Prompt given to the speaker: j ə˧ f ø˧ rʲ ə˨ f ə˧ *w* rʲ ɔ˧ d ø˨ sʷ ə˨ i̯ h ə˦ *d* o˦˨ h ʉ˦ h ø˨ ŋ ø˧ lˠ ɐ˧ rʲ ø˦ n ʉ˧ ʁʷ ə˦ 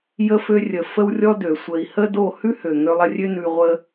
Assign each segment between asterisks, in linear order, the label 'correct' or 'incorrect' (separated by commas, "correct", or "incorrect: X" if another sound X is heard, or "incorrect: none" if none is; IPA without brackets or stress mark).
correct, correct